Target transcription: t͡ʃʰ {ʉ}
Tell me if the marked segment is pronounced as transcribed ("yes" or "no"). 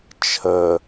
no